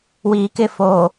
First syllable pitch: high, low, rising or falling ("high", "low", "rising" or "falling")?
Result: low